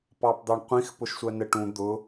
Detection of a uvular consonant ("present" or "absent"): present